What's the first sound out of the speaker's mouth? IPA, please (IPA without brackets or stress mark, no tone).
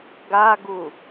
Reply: ɡ